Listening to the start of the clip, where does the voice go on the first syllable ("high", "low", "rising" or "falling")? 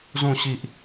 falling